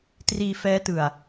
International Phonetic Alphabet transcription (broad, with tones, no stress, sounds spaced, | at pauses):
t r iː˧ f ɛː˦˥ t ɯ˨˩ a̯